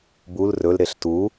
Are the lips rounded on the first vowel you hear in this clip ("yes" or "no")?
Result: yes